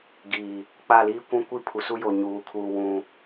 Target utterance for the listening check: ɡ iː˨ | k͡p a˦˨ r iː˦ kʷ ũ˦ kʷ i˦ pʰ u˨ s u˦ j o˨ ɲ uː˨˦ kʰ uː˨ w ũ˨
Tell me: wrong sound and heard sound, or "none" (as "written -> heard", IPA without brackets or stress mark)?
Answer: r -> l